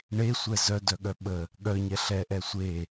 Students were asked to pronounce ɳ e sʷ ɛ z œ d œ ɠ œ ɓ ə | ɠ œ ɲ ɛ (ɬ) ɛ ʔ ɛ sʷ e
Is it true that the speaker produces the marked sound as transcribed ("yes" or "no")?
yes